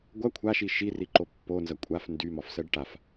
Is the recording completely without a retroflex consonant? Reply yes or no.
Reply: no